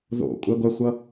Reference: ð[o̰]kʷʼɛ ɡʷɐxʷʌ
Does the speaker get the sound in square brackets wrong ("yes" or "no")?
no